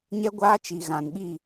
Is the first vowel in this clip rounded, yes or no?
no